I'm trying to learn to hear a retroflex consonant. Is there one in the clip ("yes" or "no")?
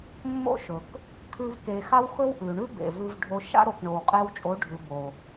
yes